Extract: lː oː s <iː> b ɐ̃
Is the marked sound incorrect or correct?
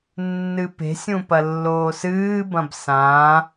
incorrect